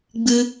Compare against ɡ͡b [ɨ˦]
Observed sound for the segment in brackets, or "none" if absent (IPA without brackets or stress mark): ɨ˦